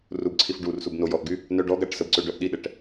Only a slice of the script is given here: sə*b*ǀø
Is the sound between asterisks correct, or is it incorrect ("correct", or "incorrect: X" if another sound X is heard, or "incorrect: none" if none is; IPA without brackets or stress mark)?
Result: correct